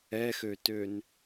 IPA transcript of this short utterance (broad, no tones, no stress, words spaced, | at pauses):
ɛxøtøn